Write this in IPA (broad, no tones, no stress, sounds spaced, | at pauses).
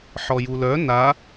ħ ɔ j u l œ n a